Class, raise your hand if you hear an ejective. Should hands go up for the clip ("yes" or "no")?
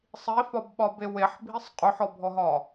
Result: yes